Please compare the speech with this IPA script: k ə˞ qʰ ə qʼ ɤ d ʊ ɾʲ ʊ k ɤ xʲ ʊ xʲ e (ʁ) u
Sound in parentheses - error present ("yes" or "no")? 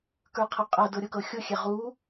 no